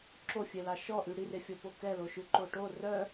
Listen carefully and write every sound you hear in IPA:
ǁofʲɛlɑ ʃɔʔy ɽirefʲɔpo kɛloʃʉ ǃoʈo rœ

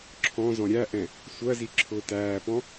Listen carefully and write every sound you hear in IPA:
ǁʰɔ̃zɔ̃ ɾʲæʔɛ̃ | sʷɜzi ǁʰʊːtæːpɔ̃

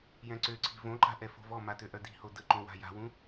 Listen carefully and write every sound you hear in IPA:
jɛ̃ǀøǀʰi̤ võǃa̤ʔɛ fo̤vɔmatø ʔœdi̤ho dəǃõ wa̤ja̤wũ

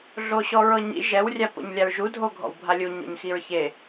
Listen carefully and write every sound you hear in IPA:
ɮoɕɔɹɤɲḭ ʒɛw rʲapo̰ɲlʲaɹʒu dʱoɡʱɔ̰wbʱalʲu ɲo̰ɲxiɹçe

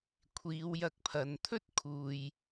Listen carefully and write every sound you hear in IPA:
kʷʰiː˨˧wjɐ˧k̚pʰɐ˨˧n t̪ʰɵ˥t̚kʰuː˨j

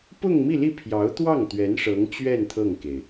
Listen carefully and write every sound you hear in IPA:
pʊ˥˧ŋmi˥˧li˥˩ pʰjɑ˧˥ʊ̯t̪wɑ˥˩ŋt̪ɥɛ˧˥n ʂɤ˧˥ŋt͡ɕɥɛ˥˧n t̪ʰɤ˥˩ŋke˩ɪ̯

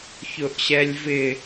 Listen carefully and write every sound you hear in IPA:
çʊʔɕɛlʲvɪ

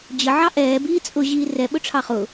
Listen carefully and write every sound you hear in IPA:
d͡ʑəʕɑ ʔɛːbiː t͡sʼʊʑiː rɛɓʊʈ͡ʂʰɑ χʊ

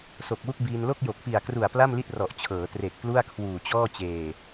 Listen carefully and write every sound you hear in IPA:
so˨˩k̚wu˥˩k̚biː˧n lo˥˩k̚jo˨˩k̚pi˨˩a̯kru˨˩a̯ pla˥˩mli˥˩t̚rɔ˨˩ʔ t͡ɕʰɤː˩˦tre˨˩k̚plu˥˩a̯ kʰwuː˨˩t͡ɕɔː˥˩ t͡ɕeː˨˩

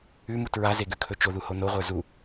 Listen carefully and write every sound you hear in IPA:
ʉmu tɹazeɡʉkʰɵ t͡ʃoðuho noʁʷə˞ zu

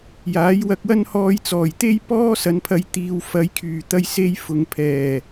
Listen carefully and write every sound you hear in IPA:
jaː˨˥jwɐ˧k̚wɐ˥n hɔː˧jt͡sɔː˨˩jt̪e˥j pɔː˥ sɐ˨˧npʰɐ˧jt̪iː˨w fɐ˨˧jkʰyː˨˩ t̪ɐ˧jse˧j fʊ˨ŋpʰɛː˨˩

